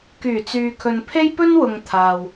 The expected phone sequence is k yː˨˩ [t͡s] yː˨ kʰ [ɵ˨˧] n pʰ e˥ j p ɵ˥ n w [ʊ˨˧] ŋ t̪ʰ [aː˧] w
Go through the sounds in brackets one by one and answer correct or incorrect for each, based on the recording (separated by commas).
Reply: correct, incorrect, incorrect, correct